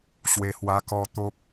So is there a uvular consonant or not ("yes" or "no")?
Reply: no